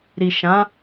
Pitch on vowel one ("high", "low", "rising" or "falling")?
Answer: low